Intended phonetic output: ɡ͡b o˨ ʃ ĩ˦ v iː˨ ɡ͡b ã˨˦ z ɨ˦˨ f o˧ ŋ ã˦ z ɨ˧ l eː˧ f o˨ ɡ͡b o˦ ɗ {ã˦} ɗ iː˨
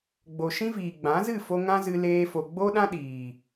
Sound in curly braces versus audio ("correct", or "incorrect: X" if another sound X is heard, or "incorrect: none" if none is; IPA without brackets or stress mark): correct